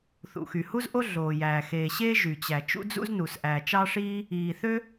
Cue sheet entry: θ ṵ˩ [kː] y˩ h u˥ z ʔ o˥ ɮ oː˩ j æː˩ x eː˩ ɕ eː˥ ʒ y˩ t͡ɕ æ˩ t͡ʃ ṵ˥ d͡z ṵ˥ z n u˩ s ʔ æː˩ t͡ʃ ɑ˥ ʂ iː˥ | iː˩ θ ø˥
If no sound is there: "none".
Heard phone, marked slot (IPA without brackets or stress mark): x